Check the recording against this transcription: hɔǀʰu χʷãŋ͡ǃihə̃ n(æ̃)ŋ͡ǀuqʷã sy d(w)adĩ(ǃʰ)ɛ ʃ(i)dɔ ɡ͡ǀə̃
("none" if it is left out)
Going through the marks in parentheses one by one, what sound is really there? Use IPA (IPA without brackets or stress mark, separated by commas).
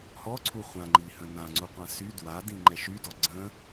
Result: ã, w, ŋ͡ǃ, y